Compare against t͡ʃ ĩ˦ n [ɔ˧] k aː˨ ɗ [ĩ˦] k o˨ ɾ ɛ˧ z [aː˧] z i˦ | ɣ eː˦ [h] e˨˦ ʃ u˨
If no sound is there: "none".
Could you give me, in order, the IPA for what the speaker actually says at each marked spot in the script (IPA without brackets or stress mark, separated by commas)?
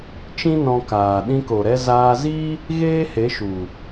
ɔ̃˧, ĩ˧, aː˧, h